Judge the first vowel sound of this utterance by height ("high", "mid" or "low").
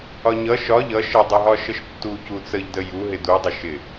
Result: low